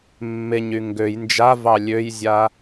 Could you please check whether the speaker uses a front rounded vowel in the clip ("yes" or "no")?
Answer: yes